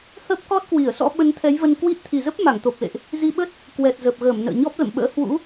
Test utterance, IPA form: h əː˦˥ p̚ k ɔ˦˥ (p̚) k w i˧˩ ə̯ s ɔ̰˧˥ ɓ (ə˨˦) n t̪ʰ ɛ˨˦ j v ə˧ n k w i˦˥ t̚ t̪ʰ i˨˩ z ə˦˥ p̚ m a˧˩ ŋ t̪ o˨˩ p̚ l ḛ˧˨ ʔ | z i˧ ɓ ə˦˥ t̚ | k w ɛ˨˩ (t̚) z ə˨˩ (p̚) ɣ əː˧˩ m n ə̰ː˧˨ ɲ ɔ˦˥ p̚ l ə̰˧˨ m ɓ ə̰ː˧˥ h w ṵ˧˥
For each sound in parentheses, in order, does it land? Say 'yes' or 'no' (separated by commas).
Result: no, yes, yes, yes